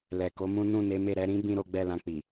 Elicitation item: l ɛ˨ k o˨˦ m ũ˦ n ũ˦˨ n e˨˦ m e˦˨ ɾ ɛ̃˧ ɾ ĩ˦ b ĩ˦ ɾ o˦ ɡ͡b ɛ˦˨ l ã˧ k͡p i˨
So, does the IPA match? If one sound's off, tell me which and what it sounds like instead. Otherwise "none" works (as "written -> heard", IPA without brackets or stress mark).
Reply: ɛ̃˧ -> ɛ˧